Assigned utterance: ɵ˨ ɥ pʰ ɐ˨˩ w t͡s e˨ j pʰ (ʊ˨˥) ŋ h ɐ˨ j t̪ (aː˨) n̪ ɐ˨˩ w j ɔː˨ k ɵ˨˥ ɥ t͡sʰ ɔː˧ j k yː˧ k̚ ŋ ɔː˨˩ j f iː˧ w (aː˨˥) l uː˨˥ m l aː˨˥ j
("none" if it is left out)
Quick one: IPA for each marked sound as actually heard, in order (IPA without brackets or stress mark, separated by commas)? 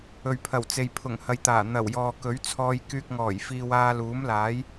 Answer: ʊ˨˩, aː˨˩, aː˧